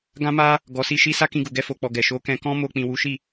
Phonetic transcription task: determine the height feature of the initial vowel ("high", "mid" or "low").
low